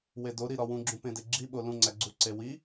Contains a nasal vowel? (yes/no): yes